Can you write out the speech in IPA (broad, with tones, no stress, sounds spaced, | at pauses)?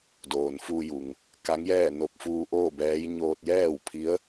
d oː˩ n f uː˧ j u˩ ŋ | k a˧˥ ŋ j ɛː˥˨ n o˧˩ p̚ f uː˧ ʔ oː˥˨ b ɛː˧˥ j ɲ oː˧ t̚ j ɛː˥˨ w pʰ i˧˥ ə̯